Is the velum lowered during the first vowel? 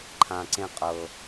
yes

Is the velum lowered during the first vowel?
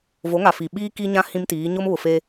no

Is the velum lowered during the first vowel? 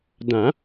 yes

